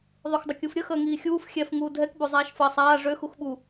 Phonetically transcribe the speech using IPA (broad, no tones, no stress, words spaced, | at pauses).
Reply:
ðˤoxdˤəkʲufɾʲə xəːŋiːxʲuːf xʲɛf ŋuːdʱɛk bozˤaːʃfəːsˤaː ʐøx uxɓu